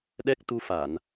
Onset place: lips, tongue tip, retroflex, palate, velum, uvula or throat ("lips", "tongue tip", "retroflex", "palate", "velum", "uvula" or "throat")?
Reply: tongue tip